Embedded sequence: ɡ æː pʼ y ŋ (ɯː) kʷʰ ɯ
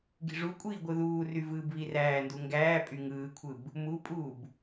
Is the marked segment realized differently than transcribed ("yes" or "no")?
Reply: no